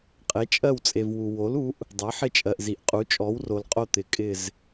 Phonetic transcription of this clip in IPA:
qʼ e˨˥ t͡ʃʼ ɜ˦˨ w t͡sʼ e˨ v w u˨ w o˨˥ l u˨˥ ʔ | dˤ ɜ˨˥ ħ ɪ˦˨ t͡ʃʼ ɜ˨ ʔ z i˨ ʔ qʼ u˨˥ t͡ʃʼ ɔ˨˥ w r o˨ l qʼ o˦˨ t̪ ɪ˨ kʼ ɪ˦˨ z

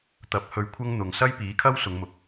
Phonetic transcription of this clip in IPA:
t̪ ɐ˨˥ p̚ h ɵ˧ ɥ kʷʰ ɐ˥ ŋ n̪ ʊ˨ ŋ s ɐ˥ j p iː˨˥ kʰ ɐ˥ w s ʊ˨˧ ŋ m ʊ˨˥ k̚

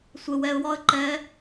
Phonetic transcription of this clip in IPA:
sʷ ɛ w ɛ ʊ̯ w ɒ ə̯ ǃ ɛ

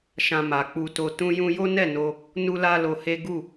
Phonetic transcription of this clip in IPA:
ʃ ã˧ m a˨ k͡p u˧ t o˧ t ũ˦ j ũ˦ j o˦ n ɛ˦˨ n o˧ | n u˦ l a˦ l o˧ h e˦ ɡ u˦˨

